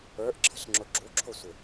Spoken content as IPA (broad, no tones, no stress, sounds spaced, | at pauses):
ə˞ ʔ ǁʰ ə̤ ɬ ŋ͡ǁ ʊ ɡ͡ǁ u ǁʰ ʊ sʷ ɪ